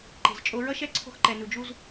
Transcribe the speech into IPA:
ǃ e̤˨ z t͡ʃʼ o˧ ɹ ʌ˦ ʃ ɛ˦ ǀʰ o̤˧ x ǃ ɛ˨ n u˨ d͡ʒ u˧ z

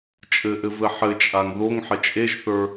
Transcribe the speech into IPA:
t͡ʃʼ ɘ ʔ ɘ v ɘ ħ ɘ t͡ʃʼ a ŋ ð o ŋ ħ ɘ t͡ʃʼ e ʒ θ ə˞

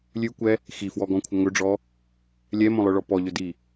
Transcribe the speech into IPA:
lʲ ʉ kʷ ɛ | x i f w ɔ ɡ ɔ̃ kʷʰ ə ŋ ɵ ɖ͡ʐ ɔ | lʲ ɛ m õ lˠ œ ɭ ɔ p ɔ ʎ ɵ d i

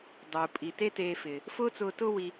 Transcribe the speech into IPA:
dˤ uː˨ pʼ i˨ t e˦ t eː˧ f ɪː˨ | f ʊː˦ t͡s ʊː˧ t ʊ˦ w i˧

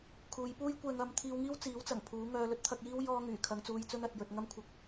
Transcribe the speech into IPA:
kʰ uː˨˧ j p uː˥ j kʷ ɛː˧ ŋ ɐ˧ m t̪ʰ iː˧ w ŋ iː˥ w t͡s iː˨˥ w t͡s ɐ˨˩ ŋ pʰ uː˨˥ ŋ œː˧ l ɵ˥ t̚ t̪ʰ ɐ˧ k̚ j iː˥ w j ɔː˧ ŋ yː˨˩ kʰ ɐ˨˧ ŋ t͡s uː˧ j t͡s ɵ˥ n ɐ˨ t̚ j ɵ˨ t̚ ŋ ɐ˧ m kʷʰ ɐ˨˥ k̚

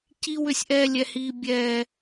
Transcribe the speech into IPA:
c i˦ w ʏ˦˨ sʲ ʔ ɛː˦ lʲ ɛ˦ h iː˦ bʲ ɛː˦

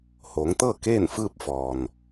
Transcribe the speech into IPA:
h oː˩˧ ŋ t̪ ɤː˥˨ k eː˥˨ n f ɯː˥˨ p̚ f ɔː˩ n

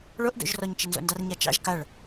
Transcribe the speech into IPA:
ɭ o ʔ d o̰ ʒ r ɔ ɲ t͡ʃ ə n z o̰ n d ɑ r ɲ a t͡ʃ ɑ̰ ʒ k a ɭ

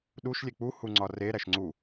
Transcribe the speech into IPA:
ɗ u ʃ lʲ e k͡p u h u ŋ͡ǀ ɒ r e ɾ æ ʃ ŋ͡ǀ u

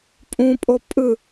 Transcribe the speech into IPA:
pʼ ũ pʼ o pʼ ɯ

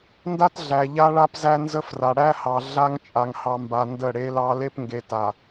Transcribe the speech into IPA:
n d a˦ t ɮ æ˨ ʎ a˦ ɭ a˦ p z æ˦ n z ə˦ f r a˨ ɽ æ˦ h ɑ˨ ɮ a˦ ŋ t͡ʃʼ a˨ ŋ h ɑ˨ m b a˨ n d ə˦˨ ɽ e˦ l ɑ˦ l e˦ p ŋ ɡ e˨ t a˨

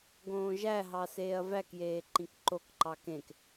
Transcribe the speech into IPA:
ɡ õː ʒ æ ɦ ɑ s eː ɐ̯ v æ k j eː ǃ ĩ k ǃ o k ǃ ɑ k ẽ k

